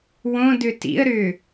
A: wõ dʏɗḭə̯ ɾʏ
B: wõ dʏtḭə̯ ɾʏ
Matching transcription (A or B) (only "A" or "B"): B